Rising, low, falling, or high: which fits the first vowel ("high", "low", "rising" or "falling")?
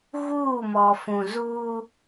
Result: falling